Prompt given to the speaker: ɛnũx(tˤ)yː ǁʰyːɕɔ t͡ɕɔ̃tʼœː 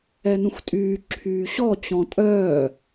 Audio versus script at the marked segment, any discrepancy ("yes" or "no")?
yes